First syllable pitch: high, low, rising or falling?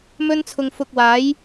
high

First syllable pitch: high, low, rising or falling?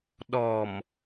low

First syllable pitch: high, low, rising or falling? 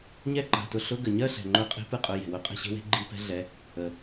falling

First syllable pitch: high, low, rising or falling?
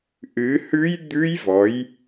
rising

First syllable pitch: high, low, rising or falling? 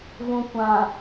low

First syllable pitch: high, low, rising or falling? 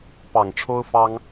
low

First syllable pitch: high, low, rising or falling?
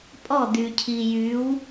falling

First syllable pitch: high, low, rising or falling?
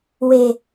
low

